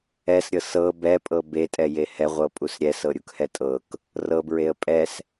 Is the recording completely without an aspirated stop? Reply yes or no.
yes